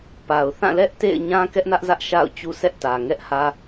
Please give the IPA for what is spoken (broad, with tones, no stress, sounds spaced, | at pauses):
p a˨ ʊ̯ θ ã˦˨ l ɛ˦ ʔ t ḛ˦˨ ɪ̯ ɲ ã˦ k ɛ˦ ʔ n ä˦ ʔ z ä˦ ʔ ʃ a̰˦˨ ʊ̯ t͡ɕ u˦ s ɛ˦ ʔ t ä˨ ŋ ɛ˦ ʔ h ä˦